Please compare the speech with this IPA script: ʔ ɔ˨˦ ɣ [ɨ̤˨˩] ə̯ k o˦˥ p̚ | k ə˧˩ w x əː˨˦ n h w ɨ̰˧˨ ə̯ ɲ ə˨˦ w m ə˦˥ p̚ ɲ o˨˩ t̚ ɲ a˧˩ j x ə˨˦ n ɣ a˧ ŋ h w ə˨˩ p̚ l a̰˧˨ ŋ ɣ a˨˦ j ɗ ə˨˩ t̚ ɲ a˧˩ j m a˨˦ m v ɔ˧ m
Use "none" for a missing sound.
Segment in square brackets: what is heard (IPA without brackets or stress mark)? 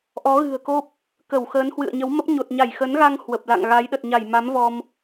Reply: ɨ̤˨˩